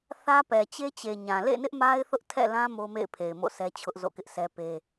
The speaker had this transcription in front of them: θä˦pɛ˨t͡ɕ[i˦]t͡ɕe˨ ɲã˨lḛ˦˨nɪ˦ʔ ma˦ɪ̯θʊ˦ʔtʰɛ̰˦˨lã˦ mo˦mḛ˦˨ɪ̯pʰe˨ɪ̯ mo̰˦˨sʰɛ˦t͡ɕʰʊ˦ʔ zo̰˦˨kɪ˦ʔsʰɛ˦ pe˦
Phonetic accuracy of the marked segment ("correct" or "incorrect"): incorrect